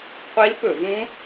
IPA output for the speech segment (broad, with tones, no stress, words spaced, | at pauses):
qʷi˦˥lpɵ˧˩˧vũ˦˥